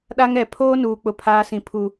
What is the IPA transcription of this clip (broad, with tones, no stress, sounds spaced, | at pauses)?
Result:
ɗ a˦ ŋ ɛ˨ pʰ oː˦ n uː˨ k͡p ʊ˦ pʰ aː˦ s ĩ˨ pʰ u˨